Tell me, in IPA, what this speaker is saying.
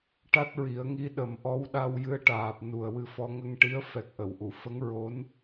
ʈ a˦˥ t̚ ɹ i˨˩˦ ə̯ ŋ i˧˥ ɗ ə˨˩˦ m ʔ ɔ˧˥ w ɗ a˧ w j ɨ˧ ə̯ ʈ aː˨˩ p̚ n u˨˩ ə̯ w ɨ˧ f ɔ˧ ŋ ə˧ ŋ ʈ i˧˥ ə̯ f ɛ˨˩ k̚ ʔ ə˨˩˨ w ʔ u˨˩˨ f ə˧˥ ŋ ɹ o˧˥ n

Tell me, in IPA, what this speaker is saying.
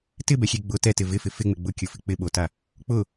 t ɪ b ɛ xʲ e ɡ͡b ʊ t ɛ t ɪ v ɪ f ɪ f ɪ ŋ͡m ɪ ɡ͡b ʊ kʲ ʊ f ɪ k͡p ɪ ɓ o t a | k͡p ʊ

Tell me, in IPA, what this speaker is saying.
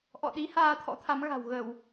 ʔ ɔ̰˧˨ ɗ i˨˦ h aː˧ t̪ʰ ɔ̰˧˥ t̪ʰ a˨˦ m ɣ a̤˨˩ w ɣ ə˧˩˨ w

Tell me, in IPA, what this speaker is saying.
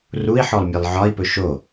r u i̯ ħ ɔ lˠ mʲ e lˠ ʕ ɒ i̯ p ɵ ʃ o

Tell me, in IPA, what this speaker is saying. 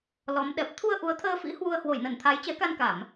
l ɔ˨˦ m ɗ ɛ˨˩ p̚ t̪ʰ u˧ ə̯ ʔ u˨˦ ə̯ t̪ʰ əː˧ f ḭ˧˥ h w u˧ ə̯ h w o˧˩ j n ə˧˩ n t̪ʰ a˨˦ j t͡ɕ ɛ˨˦ k a˧ n k a˧˩˨ m

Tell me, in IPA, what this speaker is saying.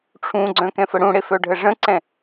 ʈ͡ʂʰ ũ ɡ͡ǀ œ̃ k ɛ̃ f ə ɽ ũ ɽ e f œ ɖʱ ə ʐ ə̃ ǀ ɛ̃

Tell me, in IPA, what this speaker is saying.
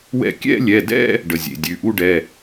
w ɛ̰˥˧ kʲ ɛ̰˥˧ lʲ ɛ˩˧˩ d ɛ̰˥˧ | ɖ ə˩˧˩ zʲ ḛ˩˧˩ dʲ ʉ˩˧˩ ʔ u˥˧ ɖ ɛ˩˧˩

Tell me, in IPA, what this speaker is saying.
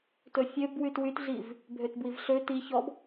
t ɵ fʲ ø b w y t w y t ɮ i v | bʱ ø t b w i v ɬ ø t i ç ɔ b

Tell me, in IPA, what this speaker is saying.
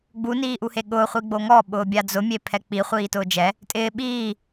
ɡ͡b u n iː ʔ u h e ɠ ʊː χʷ i ɡ͡b o ŋ ɔ ɓ ʊː bʲ a d͡z ʊ mʲ e pʰ ɛ k͡p i χʷ iː t ʊː d͡ʒ ɛ | tʼ ɪː ɓ iː

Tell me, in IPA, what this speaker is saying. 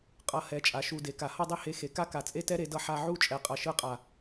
qʼ ʌ˧ h ɛ˨˦ t͡ʃʼ a˨ ʃ u˨ d e˨ k a˨ h ʌ˦˨ dˤ i˦ h e˧ x e˨ k a˦ k a˨ t͡sʼ e˦ t ɛ˦ ɾ e˧ d ʌ˧ ħ a˧ ʕ u˦ t͡ʃʼ ɛ˨ qʼ ʌ˨ ʃ ɯ˧ qʼ a˨

